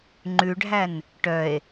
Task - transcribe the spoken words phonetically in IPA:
ŋ͡ǃ ʉ ɖʱ æ n | ʈ œ e̯

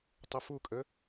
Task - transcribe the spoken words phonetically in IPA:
tˤ ɨ f u kʼ ə

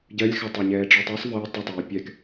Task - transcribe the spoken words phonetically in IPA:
ɟ ɜ lʲ x a tˤ a ɲ ɛː ɖ͡ʐ əː tˤ i sˤ v əː tˤ ə tˤ ɛː pʲ ɛ k

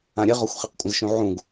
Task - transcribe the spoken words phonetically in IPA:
ã ɾʲ ɘ ʁ ɔ xʷ χ e q kʷʼ ɐ̃ z ʃ ũ ʕ ũ ɡ

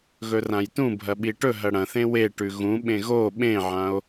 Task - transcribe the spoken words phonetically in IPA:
ɣ ɵ r ã j t ũ bʱ ɐ ɓ i ʈ ɵ ɦ ɐ ɽ ɐ̃ θ ẽ w e ʈ ʉ ɣ ũ ɓ ẽ ɣ o ɓ ẽ ʕ ã o̯

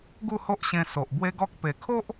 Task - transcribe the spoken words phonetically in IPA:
ɡ u˥˧ h o˦ ʔ ɕ ẽ˧ s o˨ ʔ b w e˦ ɡ ɔ˦ k̚ p e˨˩ kʰ o˦ ʔ

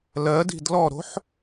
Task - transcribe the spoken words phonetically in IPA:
l ɜ d i̤ d l ɔ ɾ o̤ ħ

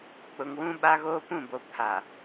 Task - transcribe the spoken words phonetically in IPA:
k͡p ʊ˨ ŋ w ũ˦ ɓ a˦ ɣ oː˦ p ũ˦˨ b o˨ pʰ a˨

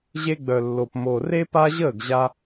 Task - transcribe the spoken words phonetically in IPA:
ʑ e˧ ɡ͡b œ˨ lː o˨ p m o˨ r e˦ p a˦ ʑ əː˦˨ ɡ ʑ a˧

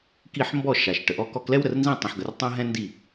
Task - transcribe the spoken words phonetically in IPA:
k i˥˩ ħ m b ɔ˥˩ ʃ a˩ ʃ ʈ ə˩ ʔ ɔ˧ k ɔ˧ k l ɛ˥ w ɾ ə˩ r n z ĩ˥˩ tˤ ĩ˩ ħ ɡ ə˩ r tˤ ɛ̃˥ ɦ ɛ̃˥ n d i˥˩

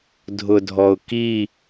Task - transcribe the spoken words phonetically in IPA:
dʱ ʊ dʱ ɔ ʊ̯ k i

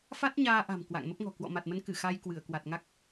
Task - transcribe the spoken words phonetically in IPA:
f a˦˥ t̚ ɲ aː˧ ʔ a̤˨˩ m k w a̰˧˨ ŋ m ə˦˥ p̚ ŋ ɔ̤˨˩ k w ɔ̰˧˨ m a˨˩ t̚ m ə˨˦ n k ɨ˧˩ x a˧ j k w ɨ˧˩ ə̯ k w a˨˩ t̚ ŋ a˦˥ k̚

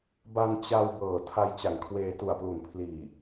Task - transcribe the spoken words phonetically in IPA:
b a˧ n t͡ɕ a˧ w b ɤː˨˩ tʰ a˧ j t͡ɕ a˨˩ ŋ kʰ w eː˧ t u˨˩ a̯ p l u˨˩ n pʰ l iː˨˩

